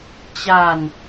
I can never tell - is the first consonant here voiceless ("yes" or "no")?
yes